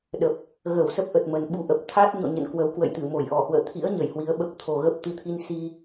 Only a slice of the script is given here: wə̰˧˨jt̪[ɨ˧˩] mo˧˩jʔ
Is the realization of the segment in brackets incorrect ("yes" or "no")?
no